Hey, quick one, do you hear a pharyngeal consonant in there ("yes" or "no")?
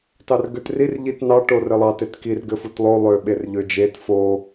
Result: no